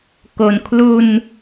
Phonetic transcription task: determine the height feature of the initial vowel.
mid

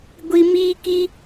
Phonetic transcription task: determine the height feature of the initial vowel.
high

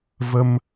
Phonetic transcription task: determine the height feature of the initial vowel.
mid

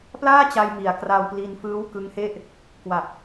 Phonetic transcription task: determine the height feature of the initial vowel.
low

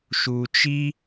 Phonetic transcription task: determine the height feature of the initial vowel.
high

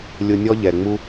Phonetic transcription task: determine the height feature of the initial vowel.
high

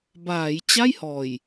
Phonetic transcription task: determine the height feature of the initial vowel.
low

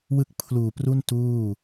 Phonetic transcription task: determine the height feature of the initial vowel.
high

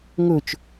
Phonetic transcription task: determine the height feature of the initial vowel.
mid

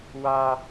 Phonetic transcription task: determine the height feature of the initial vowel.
low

